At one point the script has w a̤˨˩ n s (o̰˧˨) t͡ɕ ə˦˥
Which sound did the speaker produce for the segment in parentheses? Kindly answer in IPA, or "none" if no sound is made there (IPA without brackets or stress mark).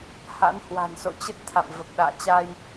o̰˧˨